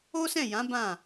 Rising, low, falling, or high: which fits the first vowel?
high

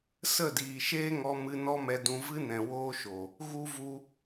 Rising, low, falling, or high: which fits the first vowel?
falling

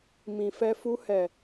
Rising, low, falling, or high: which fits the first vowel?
low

